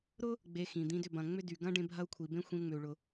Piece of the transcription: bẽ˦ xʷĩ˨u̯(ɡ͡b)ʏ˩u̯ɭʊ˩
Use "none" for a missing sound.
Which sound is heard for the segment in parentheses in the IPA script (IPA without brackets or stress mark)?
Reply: ŋ͡m